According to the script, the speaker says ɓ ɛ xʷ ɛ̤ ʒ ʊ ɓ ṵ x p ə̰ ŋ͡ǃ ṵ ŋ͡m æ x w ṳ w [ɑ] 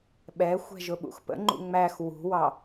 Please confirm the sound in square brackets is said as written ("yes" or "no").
yes